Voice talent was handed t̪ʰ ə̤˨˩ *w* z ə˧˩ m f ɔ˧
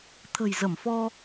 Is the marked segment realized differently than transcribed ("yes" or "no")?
yes